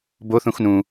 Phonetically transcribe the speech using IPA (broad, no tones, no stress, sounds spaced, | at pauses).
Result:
b o θ ũ x n ũ